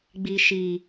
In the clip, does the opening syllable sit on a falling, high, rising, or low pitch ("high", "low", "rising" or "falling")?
low